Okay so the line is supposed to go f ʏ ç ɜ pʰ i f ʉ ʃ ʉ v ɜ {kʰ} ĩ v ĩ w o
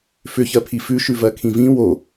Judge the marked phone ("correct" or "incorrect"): correct